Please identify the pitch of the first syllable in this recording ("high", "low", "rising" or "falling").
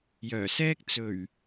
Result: low